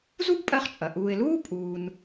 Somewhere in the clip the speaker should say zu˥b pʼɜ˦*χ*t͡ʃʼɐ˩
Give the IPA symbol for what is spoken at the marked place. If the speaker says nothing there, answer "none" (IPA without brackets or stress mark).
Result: χ